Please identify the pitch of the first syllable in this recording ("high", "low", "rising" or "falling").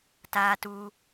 high